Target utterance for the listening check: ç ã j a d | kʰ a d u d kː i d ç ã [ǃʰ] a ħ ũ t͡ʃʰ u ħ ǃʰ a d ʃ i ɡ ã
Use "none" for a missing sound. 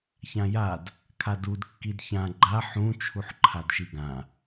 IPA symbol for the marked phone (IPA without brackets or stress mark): ɡ͡ǃ